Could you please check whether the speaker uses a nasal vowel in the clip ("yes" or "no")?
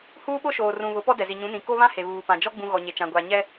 yes